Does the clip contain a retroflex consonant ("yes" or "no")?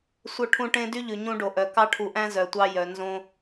yes